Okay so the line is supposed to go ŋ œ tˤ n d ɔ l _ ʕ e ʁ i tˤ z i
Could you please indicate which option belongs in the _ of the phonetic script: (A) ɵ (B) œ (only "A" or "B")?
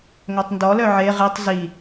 B